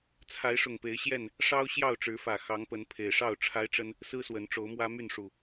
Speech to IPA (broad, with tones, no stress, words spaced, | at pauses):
t͡sʰa˨˦ɪ̯ʂʊ˨˩ŋpe˨˦ɪ̯ ɕjɛ˥˨n | ʂɑ˦ʊ̯ ɕjɑ˥˨ʊ̯ʈ͡ʂɻ̩˨˦fä˨˩ xɑ˨˦ŋpə˨˦n pʰe˨˩ɪ̯ʂɑ˥˨ʊ̯ ʈ͡ʂʰa˦ɪ̯ʈ͡ʂə˦n | sɹ̩˦swə˨˦nʈ͡ʂo˨˦ʊ̯mwä˦ my˥˨nʂu˨˩